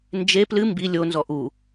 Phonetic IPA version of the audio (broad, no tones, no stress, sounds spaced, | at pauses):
n d͡ʒ e p l ɨ m b i lʲ o n z ɔ ʔ u